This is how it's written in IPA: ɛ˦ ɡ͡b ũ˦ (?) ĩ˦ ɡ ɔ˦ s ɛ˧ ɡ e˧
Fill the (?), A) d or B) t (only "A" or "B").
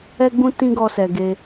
B